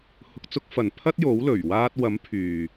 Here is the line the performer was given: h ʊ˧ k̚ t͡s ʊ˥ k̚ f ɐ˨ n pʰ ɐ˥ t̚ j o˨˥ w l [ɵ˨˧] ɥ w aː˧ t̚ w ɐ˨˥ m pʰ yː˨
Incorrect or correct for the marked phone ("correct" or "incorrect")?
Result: incorrect